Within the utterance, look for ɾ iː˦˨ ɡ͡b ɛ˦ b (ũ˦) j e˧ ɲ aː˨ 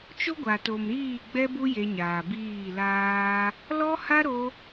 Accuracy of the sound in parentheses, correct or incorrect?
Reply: incorrect